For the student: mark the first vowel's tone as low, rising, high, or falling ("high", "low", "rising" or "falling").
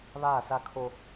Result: falling